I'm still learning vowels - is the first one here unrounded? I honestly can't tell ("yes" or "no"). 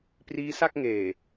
yes